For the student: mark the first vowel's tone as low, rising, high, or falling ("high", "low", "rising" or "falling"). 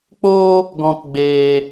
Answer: high